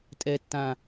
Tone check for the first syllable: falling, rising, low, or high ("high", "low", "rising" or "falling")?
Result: high